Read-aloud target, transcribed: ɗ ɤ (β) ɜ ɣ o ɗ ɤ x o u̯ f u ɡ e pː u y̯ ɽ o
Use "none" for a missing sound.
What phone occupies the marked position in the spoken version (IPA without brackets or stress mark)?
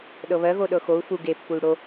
β